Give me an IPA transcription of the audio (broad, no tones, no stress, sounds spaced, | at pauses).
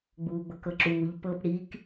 ɡ͡b uː ɡ͡b ɤ k ɤ ǁ uː ʎ p ɤ p ɽ i k